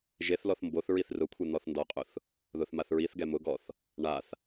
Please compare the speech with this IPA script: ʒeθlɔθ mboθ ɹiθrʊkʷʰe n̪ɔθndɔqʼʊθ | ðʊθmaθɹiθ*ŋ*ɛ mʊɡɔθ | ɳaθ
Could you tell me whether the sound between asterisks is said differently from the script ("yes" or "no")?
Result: yes